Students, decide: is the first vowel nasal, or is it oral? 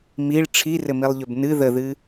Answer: oral